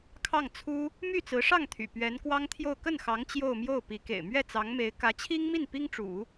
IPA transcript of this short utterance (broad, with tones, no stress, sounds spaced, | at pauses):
kʰ ɑ˥˩ ŋ t͡sʰ u˥ | m y˥˩ t͡s ɹ̩˧˥ ʂ ɑ˥˩ ŋ t̪ʰ y̰˨˩ p ɥ ɛ˧˥ n k w ɑ˥ ŋ t̪ʰ j o˥˧ ʊ̯ k ə˥˩ n x ɑ˧˥ ŋ t͡ɕ j o˥˧ ʊ̯ m j o˥˩ ʊ̯ p i˧˥ k ḛ˨˩ ɪ̯ m ɥ ɛ˥˩ t͡s ɑ˧˥ ŋ m e˧˥ ɪ̯ k ä˧˥ t͡ɕʰ i˥ ŋ m i˥˩ n p i˥ ŋ ʈ͡ʂ ṵ˨˩˦